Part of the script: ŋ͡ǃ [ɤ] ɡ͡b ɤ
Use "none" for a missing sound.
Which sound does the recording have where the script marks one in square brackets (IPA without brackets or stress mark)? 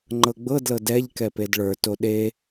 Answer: ɤ